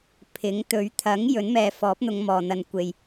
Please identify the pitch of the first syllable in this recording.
rising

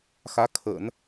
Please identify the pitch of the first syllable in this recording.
rising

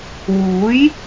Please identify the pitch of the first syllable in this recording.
rising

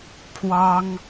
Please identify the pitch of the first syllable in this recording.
high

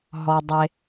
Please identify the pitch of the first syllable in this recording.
low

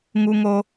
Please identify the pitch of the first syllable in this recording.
high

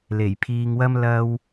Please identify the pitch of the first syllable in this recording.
low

